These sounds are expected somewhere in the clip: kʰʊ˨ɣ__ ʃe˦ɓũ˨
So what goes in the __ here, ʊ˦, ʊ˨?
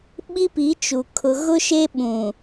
ʊ˦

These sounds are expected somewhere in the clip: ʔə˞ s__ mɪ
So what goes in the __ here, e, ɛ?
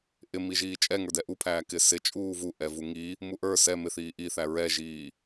ɛ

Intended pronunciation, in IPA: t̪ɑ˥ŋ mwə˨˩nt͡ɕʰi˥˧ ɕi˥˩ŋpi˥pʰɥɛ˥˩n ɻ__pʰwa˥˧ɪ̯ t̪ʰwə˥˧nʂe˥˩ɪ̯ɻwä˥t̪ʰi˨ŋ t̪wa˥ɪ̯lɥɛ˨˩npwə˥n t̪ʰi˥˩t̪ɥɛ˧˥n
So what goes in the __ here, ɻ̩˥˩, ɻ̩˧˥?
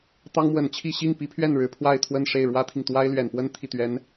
ɻ̩˧˥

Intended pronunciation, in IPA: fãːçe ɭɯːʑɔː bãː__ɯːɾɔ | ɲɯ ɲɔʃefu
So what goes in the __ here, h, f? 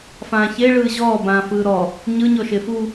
f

